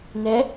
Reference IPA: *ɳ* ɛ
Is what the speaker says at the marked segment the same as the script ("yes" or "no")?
no